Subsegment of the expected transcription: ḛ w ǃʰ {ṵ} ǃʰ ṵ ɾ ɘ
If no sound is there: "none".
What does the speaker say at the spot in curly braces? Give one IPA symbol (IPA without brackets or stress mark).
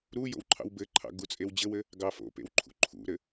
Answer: ṵ